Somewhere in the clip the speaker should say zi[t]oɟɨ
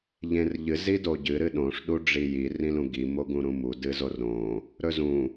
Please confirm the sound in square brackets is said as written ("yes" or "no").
no